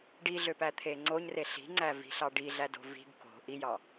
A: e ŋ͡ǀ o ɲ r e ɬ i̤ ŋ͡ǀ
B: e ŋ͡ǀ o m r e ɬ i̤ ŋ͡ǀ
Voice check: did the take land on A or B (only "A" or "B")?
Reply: A